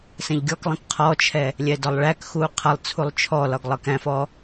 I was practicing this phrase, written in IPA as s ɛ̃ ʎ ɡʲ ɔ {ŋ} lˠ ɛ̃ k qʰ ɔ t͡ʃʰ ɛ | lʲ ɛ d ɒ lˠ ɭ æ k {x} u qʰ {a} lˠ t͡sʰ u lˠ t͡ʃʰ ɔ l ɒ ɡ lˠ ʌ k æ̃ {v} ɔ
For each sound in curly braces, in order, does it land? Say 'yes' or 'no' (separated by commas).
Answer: no, yes, no, no